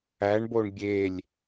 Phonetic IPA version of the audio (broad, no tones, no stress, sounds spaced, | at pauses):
æ ɳ b o ɳ bʲ e lʲ